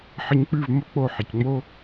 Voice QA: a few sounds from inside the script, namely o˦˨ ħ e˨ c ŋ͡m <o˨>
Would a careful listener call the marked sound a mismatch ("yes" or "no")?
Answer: yes